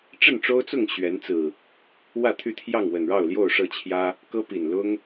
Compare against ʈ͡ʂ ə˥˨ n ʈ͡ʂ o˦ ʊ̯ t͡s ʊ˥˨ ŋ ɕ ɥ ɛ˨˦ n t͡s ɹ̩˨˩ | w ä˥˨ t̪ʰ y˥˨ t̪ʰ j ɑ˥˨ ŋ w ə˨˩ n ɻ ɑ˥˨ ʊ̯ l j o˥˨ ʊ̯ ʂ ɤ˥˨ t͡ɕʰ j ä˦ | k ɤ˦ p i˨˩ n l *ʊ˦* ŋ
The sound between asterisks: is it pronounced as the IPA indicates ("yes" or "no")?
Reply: yes